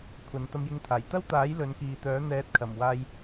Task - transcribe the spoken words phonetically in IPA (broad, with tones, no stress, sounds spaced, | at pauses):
kʷʰ ɐ˨˧ n t̪ ɐ˧ m j ɪ˧ ŋ t̪ʰ aː˨˩ j t̪ ɐ˥ w t̪ aː˨˥ j l ɵ˨˧ n k iː˨ t̪ œː˨˥ n̪ ɛː˧ t̚ kʰ ɐ˨˩ m w aː˧ j